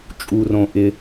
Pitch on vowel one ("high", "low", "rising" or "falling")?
low